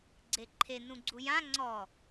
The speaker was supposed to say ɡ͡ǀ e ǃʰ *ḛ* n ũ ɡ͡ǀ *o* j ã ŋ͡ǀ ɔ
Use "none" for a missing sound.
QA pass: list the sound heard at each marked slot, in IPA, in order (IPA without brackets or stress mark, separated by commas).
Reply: e, u